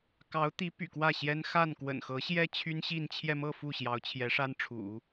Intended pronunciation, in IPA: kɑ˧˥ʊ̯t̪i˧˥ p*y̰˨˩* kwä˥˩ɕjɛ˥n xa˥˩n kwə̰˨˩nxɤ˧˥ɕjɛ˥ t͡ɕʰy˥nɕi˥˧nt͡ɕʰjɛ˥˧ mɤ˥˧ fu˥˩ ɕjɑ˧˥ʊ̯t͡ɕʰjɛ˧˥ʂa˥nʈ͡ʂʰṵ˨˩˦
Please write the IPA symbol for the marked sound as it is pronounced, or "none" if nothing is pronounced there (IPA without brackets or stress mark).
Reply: y̰˨˩